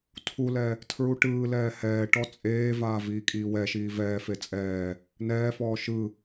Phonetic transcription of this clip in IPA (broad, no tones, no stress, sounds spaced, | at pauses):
tʰ u l ɛ | tʰ ɹ u ʈ ɯː l ɛː h ɛː ʈ ɔ t͡sʼ eː v aː v iː kʼ iː w ɛ ʃ iː v ɛː f e t͡sʼ ɛː | n ɛː f ɔː ʃ ɯ